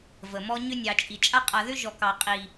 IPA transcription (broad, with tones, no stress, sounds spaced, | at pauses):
v ə˨ m ɔ˦ ɲ ʏ˧ nʲ ɑ˨ t͡ʃʼ i˨ t͡ʃʼ a˧ qʼ a˨ ð ʏ˦ ʒ ɔ˨ k ɑ˨ qʼ i˨